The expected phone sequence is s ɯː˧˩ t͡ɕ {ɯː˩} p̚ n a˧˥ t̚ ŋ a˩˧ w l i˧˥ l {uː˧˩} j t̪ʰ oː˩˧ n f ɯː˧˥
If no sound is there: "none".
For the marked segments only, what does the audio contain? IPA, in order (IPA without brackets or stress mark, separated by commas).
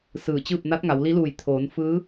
ɯː˥˨, uː˧˩